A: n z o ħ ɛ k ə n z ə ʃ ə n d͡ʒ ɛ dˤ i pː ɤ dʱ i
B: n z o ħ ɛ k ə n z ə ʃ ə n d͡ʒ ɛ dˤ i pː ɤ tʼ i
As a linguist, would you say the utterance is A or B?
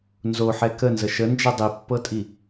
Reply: B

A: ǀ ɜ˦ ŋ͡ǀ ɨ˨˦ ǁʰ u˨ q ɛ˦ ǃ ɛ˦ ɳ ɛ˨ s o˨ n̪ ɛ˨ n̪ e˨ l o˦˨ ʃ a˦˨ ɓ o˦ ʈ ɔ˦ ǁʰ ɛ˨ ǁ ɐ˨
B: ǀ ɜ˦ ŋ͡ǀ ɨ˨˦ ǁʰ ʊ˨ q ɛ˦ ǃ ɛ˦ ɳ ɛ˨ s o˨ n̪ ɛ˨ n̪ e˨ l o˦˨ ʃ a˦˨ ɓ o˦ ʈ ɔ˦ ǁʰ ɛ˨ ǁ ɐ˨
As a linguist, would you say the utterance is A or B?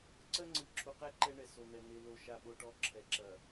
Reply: A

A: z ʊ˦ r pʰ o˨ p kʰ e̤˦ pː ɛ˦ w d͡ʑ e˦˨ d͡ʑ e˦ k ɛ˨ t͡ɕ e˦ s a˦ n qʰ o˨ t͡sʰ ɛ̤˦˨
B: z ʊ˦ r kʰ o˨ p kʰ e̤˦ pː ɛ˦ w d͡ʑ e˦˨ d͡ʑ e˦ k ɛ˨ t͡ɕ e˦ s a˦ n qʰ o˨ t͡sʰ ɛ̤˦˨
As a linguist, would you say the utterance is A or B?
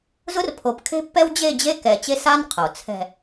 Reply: A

